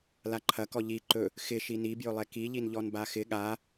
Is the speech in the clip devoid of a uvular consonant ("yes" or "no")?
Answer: yes